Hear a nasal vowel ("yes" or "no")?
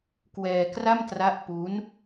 no